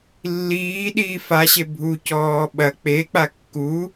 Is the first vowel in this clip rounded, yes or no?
no